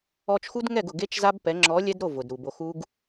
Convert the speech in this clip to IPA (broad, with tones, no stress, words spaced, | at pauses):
ɔ˧t͡ʃxu˦d ŋɛ˦˨ɡʊ˨ ɡe˦t͡ʃza˦b pɛ˨˦ ŋ͡ǁɔ˨˦ lʲɛ˦d ɾo˦˨ vʊ˨dɾu˨bo˧ xu˦ɡ